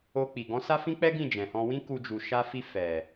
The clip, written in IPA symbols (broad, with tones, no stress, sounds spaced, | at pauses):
o˧ k͡p i˨ ɡ ɔ̃˨˦ s a˦ f ĩ˦ k͡p ɛ˦ ɡ ĩ˦˨ d͡ʒ ɛ̃˨ h ɔ̃˧ w ĩ˦ k u˧ d͡ʒ u˨ ʃ a˧ f i˧ f ɛ˨